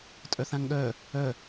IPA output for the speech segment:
tʼ œ θ ã ŋ ɠ œ | œ

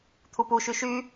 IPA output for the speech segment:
t̪ʰ u p u ʃ y ʃ y

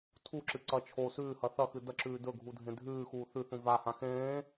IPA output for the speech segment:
tʰ u ǁ ɨ ǀ ɐ t͡ʃʰ o s ʉː h ɐ θ ɐ x ɨ d ɐ ǁ ʉː d ɵ ɡʱ u dʱ ẽ dʱ ʉː x uː θ ʉ θ ũ v a h ã x ẽː

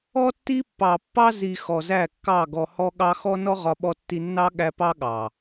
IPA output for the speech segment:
ɔ˦ tː i˦ pː ɑ˨ pː ɑ˦ z i˨ x ɔ˨ z æ˦˨ kː ɑ˦˨ ɡ ɔ˨ h ɔ˦ ɠ ɑ˦ x ɔ˦ n ɔ˦ ʁ ɒ˦ ɓ ɔ˦ tː i˦ nː ɑ˦ ɠ æ˦ p ɑ˦ ɠ ɑ˨

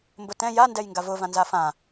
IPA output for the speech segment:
m b ʊ t ɛ̃ j a n d ɛ j ŋ ɡ a v ʊ v ã n z a f ã

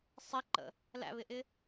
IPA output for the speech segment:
sˤ ɪ ǃ ə̰ | l æ̰ β ɪ ʔ ɪ

